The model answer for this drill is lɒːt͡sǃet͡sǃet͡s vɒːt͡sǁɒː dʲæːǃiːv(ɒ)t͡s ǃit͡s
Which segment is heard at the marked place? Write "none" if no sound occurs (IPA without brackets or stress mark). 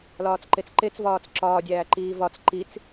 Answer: ɒ